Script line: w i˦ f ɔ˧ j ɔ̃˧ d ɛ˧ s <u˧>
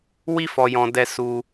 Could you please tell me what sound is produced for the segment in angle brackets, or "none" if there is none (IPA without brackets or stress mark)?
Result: u˧